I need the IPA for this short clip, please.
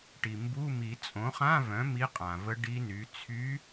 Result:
ʈ i˩ m b u˧˥˧ m i˨˩˦ t͡sʼ õ˩˥ χ ã˧˥˧ v œ̃˩˥ m i˧˥ qʼ ã˩ v ə˧˥ ɖ i˧˥ n y˩˥ t͡sʰ y˧˥

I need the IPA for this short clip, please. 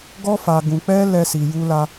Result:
ɡ ɔ˦ f a˧ ɡ ũ˧ k͡p ɛ˦ l ɛ˦ s i˧ j u˦ l a˦

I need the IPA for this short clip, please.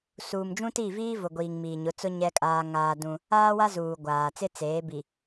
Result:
s uː˨ m d͡ʒ ũ˦ t i˦˨ v iː˦ v ʊ˨ ɡʷ iː˨ ŋ m iː˨ ɲ ʊ˨˦ t͡s ʊ˦ ɲ ɛ˦ kʼ aː˦ ŋ aː˦ d ũ˦ | aː˦ w a˦ z uː˨ ɡʷ aː˨ t͡s ɪ˦ t͡s eː˨˦ b i˨

